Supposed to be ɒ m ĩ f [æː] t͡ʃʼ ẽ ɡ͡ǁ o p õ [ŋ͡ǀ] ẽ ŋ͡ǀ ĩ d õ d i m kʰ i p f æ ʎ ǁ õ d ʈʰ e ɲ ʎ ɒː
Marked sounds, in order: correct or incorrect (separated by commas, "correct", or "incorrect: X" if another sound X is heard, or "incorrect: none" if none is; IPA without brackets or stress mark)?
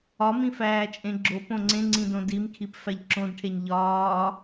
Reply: correct, correct